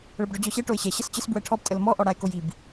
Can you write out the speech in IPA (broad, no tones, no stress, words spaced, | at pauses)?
ɭəbɖɔd͡ʑɔɕɛ ʈoɪ̯ɕɛ ɕɐst͡ɕəs bwɛʈʰɔb tʼəlmɔ ʔɔɽaɪ̯kojib